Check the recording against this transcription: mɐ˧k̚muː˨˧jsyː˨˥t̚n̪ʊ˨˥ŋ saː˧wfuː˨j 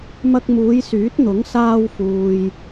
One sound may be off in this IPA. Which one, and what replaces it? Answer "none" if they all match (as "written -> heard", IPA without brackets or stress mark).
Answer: none